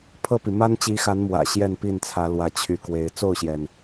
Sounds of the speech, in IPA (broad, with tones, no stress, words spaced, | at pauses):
pʰɤ˥˨pi˩ ma˦nt͡ɕi˨˦xa˨˦n mwä̰˨˩ ɕjɛ˥˨npi˥˨nt͡sʰä˨˦lwä˨˦ t͡ɕʰy˨˦kwe˨˦ɪ̯ t͡so˥˨ʊ̯ɕjɛ˩n